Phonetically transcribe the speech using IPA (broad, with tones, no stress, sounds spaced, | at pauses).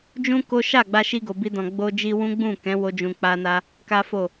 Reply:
d͡ʒ ũ˦ k o˦ ʃ a˦˨ ɡ͡b a˧ ʃ i˧ ɡ o˨ b i˧ d ɔ̃˨ ɡ͡b o˧ d͡ʒ i˧ w ũ˦ ɡ͡b ũ˦˨ k ɛ̃˨˦ w o˧ d͡ʒ ũ˨ k͡p a˧ n a˧ | k a˦ f o˦˨